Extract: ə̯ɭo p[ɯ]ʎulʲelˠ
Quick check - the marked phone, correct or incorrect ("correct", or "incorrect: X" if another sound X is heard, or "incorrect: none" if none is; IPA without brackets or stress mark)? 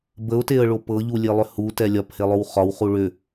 incorrect: ɤ